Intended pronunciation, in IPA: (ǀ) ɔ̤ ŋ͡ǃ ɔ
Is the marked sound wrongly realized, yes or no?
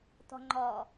yes